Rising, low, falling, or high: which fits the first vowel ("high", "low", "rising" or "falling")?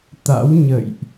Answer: rising